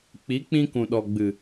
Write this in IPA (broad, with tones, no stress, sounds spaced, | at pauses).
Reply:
k͡p i˨˦ k͡p ĩ˧ k ũ˨ ɗ ɔ˨ ɡ͡b ɨ˨